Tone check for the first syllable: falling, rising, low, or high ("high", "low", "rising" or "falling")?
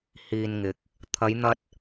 low